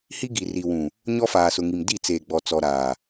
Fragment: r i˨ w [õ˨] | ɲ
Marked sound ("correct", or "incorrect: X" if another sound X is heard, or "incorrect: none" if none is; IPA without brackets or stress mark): incorrect: ũ˨